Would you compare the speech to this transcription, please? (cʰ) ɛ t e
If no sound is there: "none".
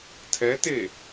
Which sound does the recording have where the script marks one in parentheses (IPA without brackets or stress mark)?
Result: tʰ